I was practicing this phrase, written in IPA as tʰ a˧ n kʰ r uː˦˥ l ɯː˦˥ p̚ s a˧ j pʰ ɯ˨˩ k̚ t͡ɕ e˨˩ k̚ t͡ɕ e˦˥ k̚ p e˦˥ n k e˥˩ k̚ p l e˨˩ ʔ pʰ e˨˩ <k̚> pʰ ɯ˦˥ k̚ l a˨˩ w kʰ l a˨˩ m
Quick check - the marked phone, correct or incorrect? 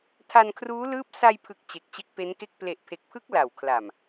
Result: correct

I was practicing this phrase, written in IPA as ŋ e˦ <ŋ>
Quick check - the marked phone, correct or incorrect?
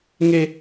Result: incorrect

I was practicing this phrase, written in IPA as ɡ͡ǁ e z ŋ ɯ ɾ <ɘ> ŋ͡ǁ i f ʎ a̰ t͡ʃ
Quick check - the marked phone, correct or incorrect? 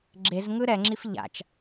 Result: incorrect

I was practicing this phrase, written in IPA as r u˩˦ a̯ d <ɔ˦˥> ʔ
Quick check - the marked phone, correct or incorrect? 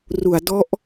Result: correct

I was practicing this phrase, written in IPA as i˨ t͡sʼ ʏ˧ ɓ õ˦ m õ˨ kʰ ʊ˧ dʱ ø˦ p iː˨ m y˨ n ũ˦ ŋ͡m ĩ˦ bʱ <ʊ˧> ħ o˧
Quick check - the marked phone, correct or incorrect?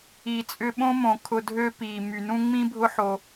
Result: incorrect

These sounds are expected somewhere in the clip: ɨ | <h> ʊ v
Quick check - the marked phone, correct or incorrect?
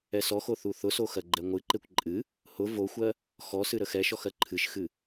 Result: correct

